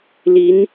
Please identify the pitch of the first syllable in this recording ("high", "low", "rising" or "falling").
rising